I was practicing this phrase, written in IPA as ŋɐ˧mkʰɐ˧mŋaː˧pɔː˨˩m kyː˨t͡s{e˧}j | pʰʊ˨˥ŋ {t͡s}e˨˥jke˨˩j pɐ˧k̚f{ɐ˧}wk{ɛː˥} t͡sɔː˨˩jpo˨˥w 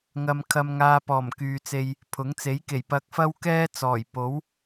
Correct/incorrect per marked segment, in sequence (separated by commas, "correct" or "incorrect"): correct, correct, incorrect, correct